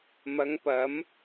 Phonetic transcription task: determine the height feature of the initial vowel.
low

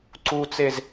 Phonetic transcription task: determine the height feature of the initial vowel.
high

